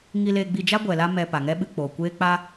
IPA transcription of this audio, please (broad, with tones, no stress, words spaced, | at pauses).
ŋi˧le˧ɡ͡bi˧d͡ʒa˦ ɡʷɛ˨ la˦mɛ˧ pa˨ŋɛ˦ɓɨ˧k͡poː˨ kʷeː˦k͡pa˦